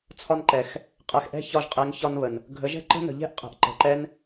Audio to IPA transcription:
t͡sʰ ɒ˧ n ǃ ɛ˨ x | qʼ ɛ˨ x ʔ ɛ̤˦˨ ç ɒ˧ ʒ qʼ e˨˦ ŋ ç ɒ˧ n β ə˨ n | ɡʱ ə˨˦ ʒ ɛ̤˦ ǃ ə̤˦ n ə̤˨ ʎ ɛ̤˦ ʔ qʼ ɛ̤˨ ʔ ǃ ə̤˨ ǃ ɛ˦ n

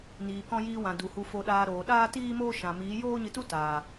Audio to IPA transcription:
n iː˨ k ɔ̃˧ j iː˧ w ã˨ d u˨ h u˧ f o˧ ɗ aː˧ ɾ oː˨ ɗ aː˦ t iː˦ m oː˦ ʃ ã˨ m iː˨˦ j oː˦ ɲ ɨ˧ t u˦ t aː˨

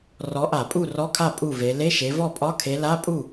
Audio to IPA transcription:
r ɔ˨˦ ʔ a˧˩˧ pʼ u˥˩ r ɔ˧˥˧ kʰ a˥˩ pʼ u˥˩ v e˨˦ l e˧˥˧ ʃ e˨˦ v ɔ˥˩ pʼ ɒ˧˥˧ kʰ e˨˦ l a˧˥˧ pʼ u˥˩

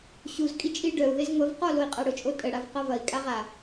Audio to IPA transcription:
ɕ u z kʼ i t͡ʃʼ i ɖ œ u̯ ð e z ŋʷ ɐ v q ɔ l o i̯ qʼ a ɽ ʊ t͡ʃʼ o tʼ ə ɽ a v q ɐ v ɐ i̯ kʼ a ʁ a

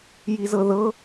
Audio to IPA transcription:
j i z ɤ ð ɤ

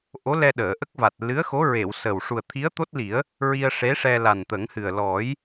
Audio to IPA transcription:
ʔ o˧˥ l ɛ˧ ɗ əː˨˩˨ ʔ ə˦˥ k̚ v a˨˩ t̚ l ɨ˧˥ ə̯ x o˧˥ ɹ e˨˩˨ w s ə˨˩ w ʂ u˨˩ ə̯ t̪ʰ i˧˥ ə̯ t̪ o˦˥ t̚ l i˨˩˦ ə̯ | ɹ i˧ ə̯ ʂ e˧˥ ʂ ɛ˧ l a˨˩ n t̪ ə˨˩˦ ŋ h ɨ˨˩ ə̯ l ɔ˨˩˦ j

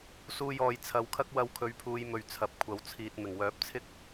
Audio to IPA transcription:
s uː˧ j ɔː˨ j t͡sʰ ɐ˨˧ w kʰ ɐ˥ k̚ w ɐ˧ w kʰ ɵ˨˥ ɥ pʰ uː˨˧ j m ɵ˨ ɥ t͡sʰ ɐ˨˥ p̚ kʷʰ ɐ˨˥ w t͡sʰ iː˨ t̚ m ɪ˨˩ ŋ w œː˨˥ p̚ t͡sʰ ɪ˥ k̚

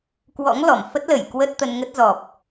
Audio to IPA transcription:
k w ɔ̰˧˥ ŋ l ɔ˧˩ m f ə˦˥ t̚ l ə˧˩ j k w ə˦˥ t̚ t̪ ə˧ n ŋ ə˦˥ t̚ z ɔ˨˩ p̚

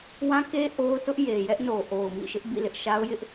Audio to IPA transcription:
w ã˦ k e˦ ʔ o˦ ʊ̯ t ʊ˦ ʔ j e˨ j ɛ˦ ʔ n o˨ ʔ o˨ ʊ̯ m ḭ˦˨ ʃ ɪ˦ ʔ b ḭ˦˨ l ɪ˦ ʔ ʃ a˦ ʊ̯ j ɪ˦ ʔ

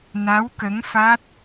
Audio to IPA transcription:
n a˧˥ w k ə˧˥ ŋ f a˦˥ t̚

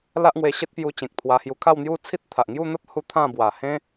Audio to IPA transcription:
l a˦ ʔ ŋ w e˧ ɕ e˦ t̚ p j u˧ t͡ɕ ẽ˨ k̚ t̪ʰ w a˧ h j u˧ kʰ a˥˧ w n̪ j u˦ t͡sʰ i˦ t̚ t̪ʰ a˨ ʔ ŋ j u˥˧ n̪ ə˦ p̚ h u˦ t̪ʰ ã˥˧ b w a˨˩ h ẽ˦

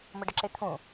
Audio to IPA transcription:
m ə ɖ ə ǁ ɪ t̪ʰ ũ

